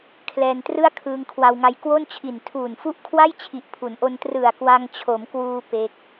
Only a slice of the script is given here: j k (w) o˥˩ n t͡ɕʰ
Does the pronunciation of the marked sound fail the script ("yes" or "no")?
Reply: no